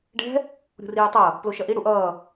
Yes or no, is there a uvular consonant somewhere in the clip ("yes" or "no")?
no